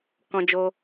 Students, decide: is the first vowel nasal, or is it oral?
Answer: nasal